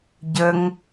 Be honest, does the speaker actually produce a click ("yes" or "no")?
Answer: no